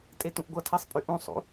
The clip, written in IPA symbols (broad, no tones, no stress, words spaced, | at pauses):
tʼetũʔɡʷʌtʰesˤ pʼyʔũsˤṵ